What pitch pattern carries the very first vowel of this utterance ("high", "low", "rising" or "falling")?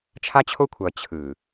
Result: high